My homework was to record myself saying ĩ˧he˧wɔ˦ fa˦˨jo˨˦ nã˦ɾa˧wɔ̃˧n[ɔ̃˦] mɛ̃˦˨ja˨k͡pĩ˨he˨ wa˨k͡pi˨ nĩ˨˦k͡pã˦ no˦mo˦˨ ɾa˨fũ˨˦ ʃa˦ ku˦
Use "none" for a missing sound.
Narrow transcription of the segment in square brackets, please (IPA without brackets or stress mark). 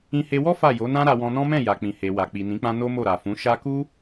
ɔ̃˦